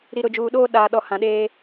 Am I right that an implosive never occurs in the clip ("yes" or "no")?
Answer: no